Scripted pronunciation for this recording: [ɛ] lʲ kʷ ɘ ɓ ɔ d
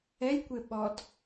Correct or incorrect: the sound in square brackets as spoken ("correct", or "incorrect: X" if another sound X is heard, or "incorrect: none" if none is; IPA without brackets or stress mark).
correct